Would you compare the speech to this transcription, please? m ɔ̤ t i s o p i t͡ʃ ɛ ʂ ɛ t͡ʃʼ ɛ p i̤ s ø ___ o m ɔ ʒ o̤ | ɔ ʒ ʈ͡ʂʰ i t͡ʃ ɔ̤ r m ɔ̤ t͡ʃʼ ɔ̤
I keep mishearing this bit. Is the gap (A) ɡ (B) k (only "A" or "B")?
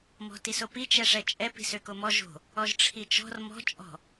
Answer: B